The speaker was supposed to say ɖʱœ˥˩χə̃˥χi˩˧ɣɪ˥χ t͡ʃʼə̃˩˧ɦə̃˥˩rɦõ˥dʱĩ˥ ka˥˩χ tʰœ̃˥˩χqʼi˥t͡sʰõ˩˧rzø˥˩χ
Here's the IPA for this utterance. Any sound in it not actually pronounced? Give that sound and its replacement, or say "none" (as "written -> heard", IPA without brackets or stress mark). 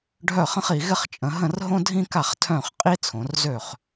none